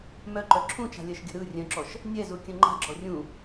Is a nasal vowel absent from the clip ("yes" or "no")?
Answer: no